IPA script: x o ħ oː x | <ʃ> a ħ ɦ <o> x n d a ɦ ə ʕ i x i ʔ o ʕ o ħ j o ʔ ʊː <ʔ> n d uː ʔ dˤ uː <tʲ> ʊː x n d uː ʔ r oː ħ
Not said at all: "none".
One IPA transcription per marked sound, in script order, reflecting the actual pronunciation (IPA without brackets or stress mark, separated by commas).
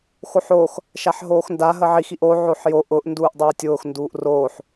ʃ, oː, ʔ, tʲ